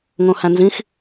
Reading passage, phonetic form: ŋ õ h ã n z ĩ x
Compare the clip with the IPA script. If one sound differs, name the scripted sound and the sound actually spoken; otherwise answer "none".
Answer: ã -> æ̃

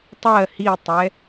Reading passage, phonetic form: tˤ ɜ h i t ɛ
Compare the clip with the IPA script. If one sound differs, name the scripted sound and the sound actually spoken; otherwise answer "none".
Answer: t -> tˤ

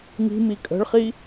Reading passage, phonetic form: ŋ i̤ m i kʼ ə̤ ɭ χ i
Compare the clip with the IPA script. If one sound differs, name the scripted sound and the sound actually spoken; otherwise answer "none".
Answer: none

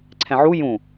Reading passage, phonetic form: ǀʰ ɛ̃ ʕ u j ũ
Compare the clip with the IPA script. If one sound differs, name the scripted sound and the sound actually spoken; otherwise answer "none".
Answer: none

